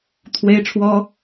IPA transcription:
t̪ʰ w e˥ ɪ̯ ʈ͡ʂʰ w ɔ˥

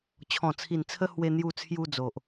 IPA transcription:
t͡ɕʰ ɔ̃˨˩ t͡sʰ i˨˩ n t͡sʰ ə˧ h w e˧ n̪ j u˧ t͡sʰ j u˧ d͡z o˨ ʔ

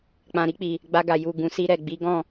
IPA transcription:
k͡p ã˨ ɾ i˧ k͡p i˨ | ɡ͡b a˧ ɡ a˨ j u˨ ɡ ũ˨ s i˧ ɾ ɛ˨ ɡ͡b i˨˦ ɡ ɔ̃˦˨

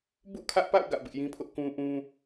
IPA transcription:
b ṵ˦˨ kʰ ä˦ ʔ p a̰˦˨ ʊ̯ ɡ ä̰˦˨ b ɪ˦ ʔ j ĩ˦ pʰ ʊ˦ ʔ k ũ˦ ʔ ũ˦

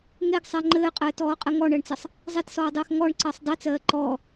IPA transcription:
ŋ e ɡ sˤ ɜ ŋ͡ǃ ɘː qʼ ɘː t ɔː qʼ ɘ ŋ ɔ ɳ ɜ ɳ t͡s ɘ sˤ | zˤ e t s ɔː dˤ eː x ŋ ɔ ɳ ǀ ɜ sˤ dˤ i t͡s ɜː ǃ ɔ

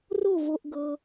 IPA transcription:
r o˥˩ v o˩ ʔ ɡ ɤ˩

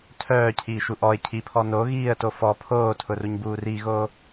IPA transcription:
tʰ œː cʰ iː ʃ u ʔ ɔ ɪ̯ cʰ i pʰ ɔ n o ɣ iː ə̯ t o f ɔ pʰ oː tʰ ʊ r u ɲ b uː r i ɣ oː

